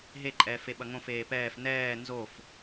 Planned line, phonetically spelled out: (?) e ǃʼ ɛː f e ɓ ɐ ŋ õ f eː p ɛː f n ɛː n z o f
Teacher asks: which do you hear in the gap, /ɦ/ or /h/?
ɦ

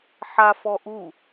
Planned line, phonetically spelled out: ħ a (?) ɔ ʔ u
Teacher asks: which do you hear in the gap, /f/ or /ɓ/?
f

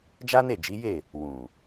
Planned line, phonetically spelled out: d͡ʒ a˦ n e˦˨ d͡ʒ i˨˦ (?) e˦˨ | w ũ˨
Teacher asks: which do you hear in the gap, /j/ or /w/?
j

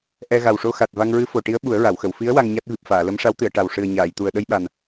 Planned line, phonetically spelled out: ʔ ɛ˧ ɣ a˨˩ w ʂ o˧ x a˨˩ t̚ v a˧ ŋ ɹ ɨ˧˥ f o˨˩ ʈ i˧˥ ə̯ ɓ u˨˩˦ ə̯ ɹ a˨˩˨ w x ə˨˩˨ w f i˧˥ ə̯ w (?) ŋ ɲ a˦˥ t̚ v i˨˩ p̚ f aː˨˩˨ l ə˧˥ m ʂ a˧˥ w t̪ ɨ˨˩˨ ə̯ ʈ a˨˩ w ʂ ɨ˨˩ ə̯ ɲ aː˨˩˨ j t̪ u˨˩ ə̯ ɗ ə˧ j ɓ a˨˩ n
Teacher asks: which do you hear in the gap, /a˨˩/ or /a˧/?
a˧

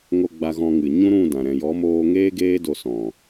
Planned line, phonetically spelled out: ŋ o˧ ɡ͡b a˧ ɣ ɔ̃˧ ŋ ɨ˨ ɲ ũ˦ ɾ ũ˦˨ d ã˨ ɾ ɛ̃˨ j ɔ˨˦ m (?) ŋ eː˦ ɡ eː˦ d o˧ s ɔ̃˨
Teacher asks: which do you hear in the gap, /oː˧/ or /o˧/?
oː˧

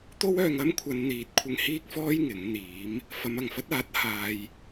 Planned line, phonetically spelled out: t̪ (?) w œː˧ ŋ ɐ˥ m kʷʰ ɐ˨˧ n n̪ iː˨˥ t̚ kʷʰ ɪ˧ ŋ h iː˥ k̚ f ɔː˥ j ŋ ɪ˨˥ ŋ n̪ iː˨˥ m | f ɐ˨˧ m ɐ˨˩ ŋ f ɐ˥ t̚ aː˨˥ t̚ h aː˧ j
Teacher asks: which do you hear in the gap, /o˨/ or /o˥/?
o˥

